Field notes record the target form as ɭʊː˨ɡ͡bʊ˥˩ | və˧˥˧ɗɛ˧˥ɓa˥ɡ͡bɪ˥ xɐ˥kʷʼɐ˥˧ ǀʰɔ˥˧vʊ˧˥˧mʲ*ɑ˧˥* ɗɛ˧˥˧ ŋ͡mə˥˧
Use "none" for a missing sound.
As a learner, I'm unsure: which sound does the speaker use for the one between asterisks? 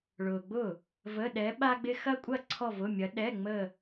ɐ˧˥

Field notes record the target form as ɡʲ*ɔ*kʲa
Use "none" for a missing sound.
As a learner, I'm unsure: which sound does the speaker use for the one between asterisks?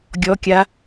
ɔ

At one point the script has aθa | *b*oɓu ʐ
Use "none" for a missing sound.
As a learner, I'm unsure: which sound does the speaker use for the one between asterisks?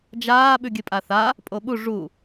pʼ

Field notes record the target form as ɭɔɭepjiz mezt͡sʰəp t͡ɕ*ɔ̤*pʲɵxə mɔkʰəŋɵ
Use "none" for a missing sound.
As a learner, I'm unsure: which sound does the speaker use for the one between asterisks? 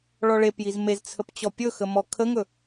ɔ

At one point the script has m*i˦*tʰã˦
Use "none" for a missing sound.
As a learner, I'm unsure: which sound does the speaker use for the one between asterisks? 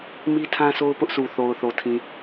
i˦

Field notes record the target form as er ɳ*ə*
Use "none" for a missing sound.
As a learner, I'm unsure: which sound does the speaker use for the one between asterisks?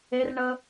ə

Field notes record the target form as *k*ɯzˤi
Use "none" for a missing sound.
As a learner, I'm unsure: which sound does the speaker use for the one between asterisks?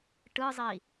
ʈ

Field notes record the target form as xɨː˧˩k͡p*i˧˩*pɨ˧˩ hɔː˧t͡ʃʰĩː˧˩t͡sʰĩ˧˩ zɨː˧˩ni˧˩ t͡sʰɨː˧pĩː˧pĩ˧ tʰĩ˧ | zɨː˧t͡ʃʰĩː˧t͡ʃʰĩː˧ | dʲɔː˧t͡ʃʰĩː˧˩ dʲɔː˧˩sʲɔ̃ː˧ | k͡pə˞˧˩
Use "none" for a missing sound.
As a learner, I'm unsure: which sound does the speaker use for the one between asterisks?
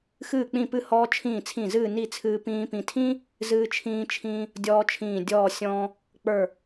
ĩ˧˩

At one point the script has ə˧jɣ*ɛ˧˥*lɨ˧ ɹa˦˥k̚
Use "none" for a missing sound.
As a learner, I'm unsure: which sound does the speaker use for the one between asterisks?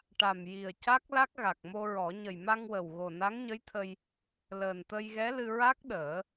ɛ˧˥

